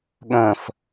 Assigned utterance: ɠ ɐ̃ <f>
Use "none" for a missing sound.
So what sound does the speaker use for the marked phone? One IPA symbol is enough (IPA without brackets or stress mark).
f